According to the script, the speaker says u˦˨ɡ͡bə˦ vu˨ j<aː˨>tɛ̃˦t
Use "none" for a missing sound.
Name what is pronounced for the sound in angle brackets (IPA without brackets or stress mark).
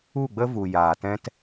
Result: aː˨